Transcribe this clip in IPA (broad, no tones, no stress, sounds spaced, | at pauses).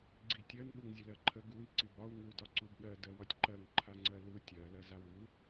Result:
ɡ͡ǀ i tʲ ɜ n ɠ u ŋ zʲ ə l ɜ ǃʰ ə ɡ u i̯ ǀ i b ɒ u̯ ŋ u d ɒ ǀ u b ɠ ɜ d ɜ w ɒ tʲ ǃ ɜ ŋ ǃʰ a ŋ͡ǀ ɜ l u tʲ ɜ l ɜ z a w u